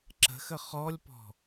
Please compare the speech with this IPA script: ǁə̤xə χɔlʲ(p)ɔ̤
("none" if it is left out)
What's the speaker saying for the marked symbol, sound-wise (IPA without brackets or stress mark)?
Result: p